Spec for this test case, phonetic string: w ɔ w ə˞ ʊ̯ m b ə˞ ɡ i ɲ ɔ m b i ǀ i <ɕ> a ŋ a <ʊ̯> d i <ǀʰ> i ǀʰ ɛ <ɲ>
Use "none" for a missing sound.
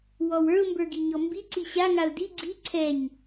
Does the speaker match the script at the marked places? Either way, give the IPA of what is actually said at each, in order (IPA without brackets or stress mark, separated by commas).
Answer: ɕ, ʊ̯, ɡ͡ǀ, ɲ